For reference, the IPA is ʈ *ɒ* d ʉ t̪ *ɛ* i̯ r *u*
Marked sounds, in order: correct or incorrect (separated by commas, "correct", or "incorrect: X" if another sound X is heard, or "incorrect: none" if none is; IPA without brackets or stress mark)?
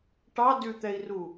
incorrect: ɑ, correct, correct